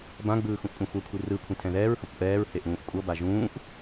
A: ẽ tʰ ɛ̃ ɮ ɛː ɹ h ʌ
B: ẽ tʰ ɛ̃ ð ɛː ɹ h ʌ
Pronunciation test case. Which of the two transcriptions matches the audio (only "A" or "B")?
B